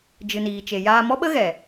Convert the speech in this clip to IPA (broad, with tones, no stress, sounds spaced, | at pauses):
d͡ʒ ɨ˨ n iː˨ t͡ʃ e˨ j aː˧ m ɔ˦ ɓ ə˦ ɣ ɛ˨